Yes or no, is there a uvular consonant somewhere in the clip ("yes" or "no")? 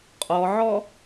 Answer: yes